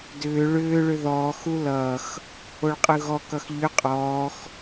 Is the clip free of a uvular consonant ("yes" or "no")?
no